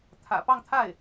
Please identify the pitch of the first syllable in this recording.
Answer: low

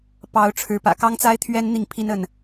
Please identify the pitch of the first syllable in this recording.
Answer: rising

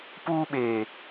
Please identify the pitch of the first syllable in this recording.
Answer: high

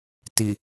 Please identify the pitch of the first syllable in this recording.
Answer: low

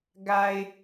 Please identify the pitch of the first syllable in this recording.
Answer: low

